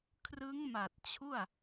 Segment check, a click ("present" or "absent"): absent